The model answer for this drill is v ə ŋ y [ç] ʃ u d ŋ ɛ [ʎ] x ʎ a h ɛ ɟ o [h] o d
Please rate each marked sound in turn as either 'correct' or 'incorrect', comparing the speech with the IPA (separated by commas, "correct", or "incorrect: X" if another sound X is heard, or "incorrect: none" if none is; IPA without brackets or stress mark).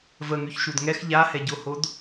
correct, incorrect: none, correct